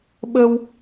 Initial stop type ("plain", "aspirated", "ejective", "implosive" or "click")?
implosive